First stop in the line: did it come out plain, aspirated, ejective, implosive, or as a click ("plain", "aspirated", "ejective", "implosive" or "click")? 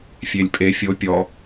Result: ejective